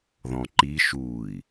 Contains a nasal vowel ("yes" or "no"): yes